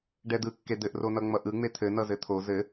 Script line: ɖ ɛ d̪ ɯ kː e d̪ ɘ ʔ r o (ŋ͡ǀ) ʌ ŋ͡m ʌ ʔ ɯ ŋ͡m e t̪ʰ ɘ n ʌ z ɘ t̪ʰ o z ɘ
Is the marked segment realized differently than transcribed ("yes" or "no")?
yes